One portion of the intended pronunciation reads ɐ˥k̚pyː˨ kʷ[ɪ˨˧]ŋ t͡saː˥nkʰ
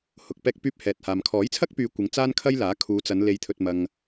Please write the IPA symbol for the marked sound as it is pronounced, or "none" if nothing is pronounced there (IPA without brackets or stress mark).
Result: ɪ˨˧